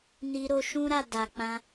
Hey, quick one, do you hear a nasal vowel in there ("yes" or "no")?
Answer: yes